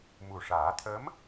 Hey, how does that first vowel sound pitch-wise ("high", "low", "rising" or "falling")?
low